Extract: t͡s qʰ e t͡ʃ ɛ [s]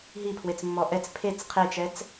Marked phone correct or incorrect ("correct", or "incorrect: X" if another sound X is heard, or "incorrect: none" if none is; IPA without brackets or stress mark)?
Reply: incorrect: t͡s